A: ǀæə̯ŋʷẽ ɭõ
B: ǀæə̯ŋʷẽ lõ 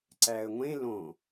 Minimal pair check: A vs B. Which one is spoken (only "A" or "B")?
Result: B